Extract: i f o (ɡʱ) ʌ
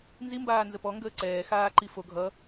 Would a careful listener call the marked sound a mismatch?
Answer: no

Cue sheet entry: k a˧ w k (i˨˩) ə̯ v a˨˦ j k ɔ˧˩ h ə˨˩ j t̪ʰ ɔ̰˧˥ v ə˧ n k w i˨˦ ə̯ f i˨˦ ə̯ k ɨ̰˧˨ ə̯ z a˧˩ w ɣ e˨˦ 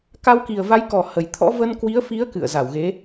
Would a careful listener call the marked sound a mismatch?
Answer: no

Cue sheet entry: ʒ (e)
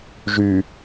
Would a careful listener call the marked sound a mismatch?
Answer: yes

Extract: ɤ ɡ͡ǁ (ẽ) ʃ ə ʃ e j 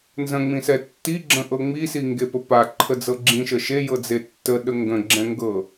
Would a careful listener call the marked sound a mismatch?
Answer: yes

